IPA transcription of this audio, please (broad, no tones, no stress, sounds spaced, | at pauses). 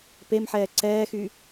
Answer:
p e m ħ ɛː ǀ ɛː x y